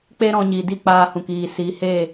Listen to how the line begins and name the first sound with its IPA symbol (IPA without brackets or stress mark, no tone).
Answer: k͡p